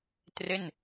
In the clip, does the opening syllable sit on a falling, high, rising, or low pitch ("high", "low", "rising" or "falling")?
falling